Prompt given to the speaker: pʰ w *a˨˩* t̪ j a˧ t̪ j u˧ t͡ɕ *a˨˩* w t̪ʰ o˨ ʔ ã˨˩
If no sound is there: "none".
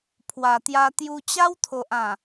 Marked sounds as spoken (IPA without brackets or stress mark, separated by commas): a˨˩, a˦